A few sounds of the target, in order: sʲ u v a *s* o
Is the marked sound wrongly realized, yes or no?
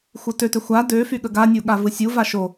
yes